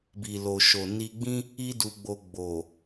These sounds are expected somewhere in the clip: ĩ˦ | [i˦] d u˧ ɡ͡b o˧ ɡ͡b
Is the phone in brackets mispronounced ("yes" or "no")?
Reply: no